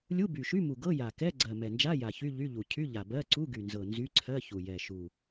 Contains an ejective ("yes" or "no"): no